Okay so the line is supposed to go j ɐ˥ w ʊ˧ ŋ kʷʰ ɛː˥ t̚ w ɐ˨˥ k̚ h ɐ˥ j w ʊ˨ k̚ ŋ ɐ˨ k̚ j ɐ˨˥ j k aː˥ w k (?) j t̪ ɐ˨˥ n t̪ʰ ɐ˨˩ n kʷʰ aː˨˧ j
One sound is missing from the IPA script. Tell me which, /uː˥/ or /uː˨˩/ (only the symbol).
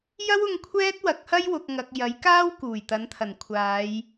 uː˨˩